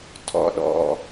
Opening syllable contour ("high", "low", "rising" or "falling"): low